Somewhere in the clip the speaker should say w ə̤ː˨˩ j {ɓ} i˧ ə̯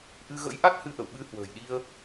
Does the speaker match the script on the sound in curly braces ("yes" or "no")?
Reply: no